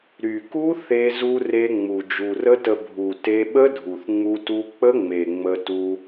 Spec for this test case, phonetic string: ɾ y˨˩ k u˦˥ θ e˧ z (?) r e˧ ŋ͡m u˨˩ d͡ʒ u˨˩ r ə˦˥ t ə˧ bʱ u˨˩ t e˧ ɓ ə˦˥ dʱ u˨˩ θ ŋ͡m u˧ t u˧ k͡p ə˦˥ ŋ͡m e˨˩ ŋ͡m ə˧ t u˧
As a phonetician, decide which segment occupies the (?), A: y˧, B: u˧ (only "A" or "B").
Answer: B